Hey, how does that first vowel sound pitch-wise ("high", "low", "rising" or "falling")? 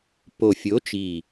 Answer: low